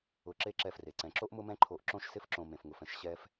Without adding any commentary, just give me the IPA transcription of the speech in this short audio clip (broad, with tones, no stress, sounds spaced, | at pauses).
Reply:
ʊ˨ ǁ e˦ ǁ ɛ˧ f r e˨ ǀ ɛ̃˨ ǁ o˦ ʔ m ʊ˧ m ɛ̃˧ ǃʰ o˨ ʔ ǁ õ˦ ʃ s ɪ˧ f ǁ õ˨ m ẽ˨ f ŋ ʊ˨ f ɛ̃˨ ʃ ɕ ɛ˦ f